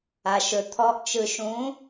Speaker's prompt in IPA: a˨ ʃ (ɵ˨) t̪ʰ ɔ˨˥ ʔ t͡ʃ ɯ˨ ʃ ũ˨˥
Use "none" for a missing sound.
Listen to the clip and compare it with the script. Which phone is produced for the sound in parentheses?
ɵ˨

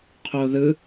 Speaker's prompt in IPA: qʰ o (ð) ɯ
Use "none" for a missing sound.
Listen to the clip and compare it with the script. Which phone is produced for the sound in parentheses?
ð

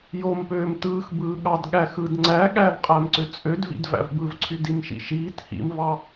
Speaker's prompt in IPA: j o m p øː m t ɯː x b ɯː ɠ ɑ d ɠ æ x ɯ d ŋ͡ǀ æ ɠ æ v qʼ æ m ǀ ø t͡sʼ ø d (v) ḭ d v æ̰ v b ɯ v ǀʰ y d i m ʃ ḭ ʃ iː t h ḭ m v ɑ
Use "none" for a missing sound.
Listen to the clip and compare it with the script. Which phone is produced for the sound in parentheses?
v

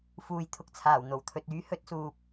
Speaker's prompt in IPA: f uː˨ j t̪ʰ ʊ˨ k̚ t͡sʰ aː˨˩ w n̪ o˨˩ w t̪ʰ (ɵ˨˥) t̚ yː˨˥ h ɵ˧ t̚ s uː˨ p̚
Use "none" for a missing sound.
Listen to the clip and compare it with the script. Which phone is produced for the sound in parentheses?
ɵ˨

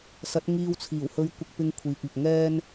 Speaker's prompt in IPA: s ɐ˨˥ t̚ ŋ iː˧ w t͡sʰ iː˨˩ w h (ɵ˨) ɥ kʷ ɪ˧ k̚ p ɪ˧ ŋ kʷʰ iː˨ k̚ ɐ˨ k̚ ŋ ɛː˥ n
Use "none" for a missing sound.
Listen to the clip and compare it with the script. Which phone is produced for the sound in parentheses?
ɵ˧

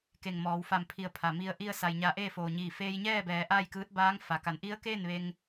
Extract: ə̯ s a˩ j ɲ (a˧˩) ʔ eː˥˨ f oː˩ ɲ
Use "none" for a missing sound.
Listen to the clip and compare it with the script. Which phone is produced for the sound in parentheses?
a˧˩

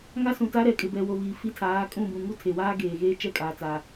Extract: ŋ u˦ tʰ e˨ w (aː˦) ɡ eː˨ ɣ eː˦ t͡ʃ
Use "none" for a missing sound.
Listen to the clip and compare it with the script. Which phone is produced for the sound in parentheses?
aː˦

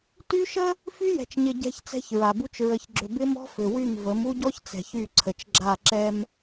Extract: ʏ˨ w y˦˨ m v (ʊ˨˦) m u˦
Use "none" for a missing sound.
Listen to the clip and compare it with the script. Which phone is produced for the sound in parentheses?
ə˨˦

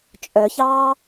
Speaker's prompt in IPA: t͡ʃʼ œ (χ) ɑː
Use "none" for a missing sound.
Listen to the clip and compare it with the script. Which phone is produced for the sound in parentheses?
ç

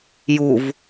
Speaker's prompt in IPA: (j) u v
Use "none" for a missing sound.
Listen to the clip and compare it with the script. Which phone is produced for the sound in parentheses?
j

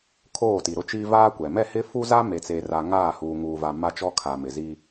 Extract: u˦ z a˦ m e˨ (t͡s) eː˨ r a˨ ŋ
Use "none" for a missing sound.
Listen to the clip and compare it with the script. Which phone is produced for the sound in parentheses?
t͡s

